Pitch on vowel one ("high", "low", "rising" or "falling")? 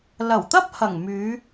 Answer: low